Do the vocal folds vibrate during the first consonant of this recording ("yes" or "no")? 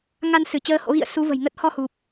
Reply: yes